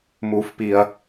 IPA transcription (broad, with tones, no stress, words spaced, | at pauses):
mu˧fpi˧ɐ̯